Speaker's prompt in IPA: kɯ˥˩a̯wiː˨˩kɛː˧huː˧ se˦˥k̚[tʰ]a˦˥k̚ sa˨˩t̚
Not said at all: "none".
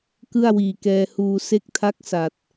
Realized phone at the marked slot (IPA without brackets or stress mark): tʰ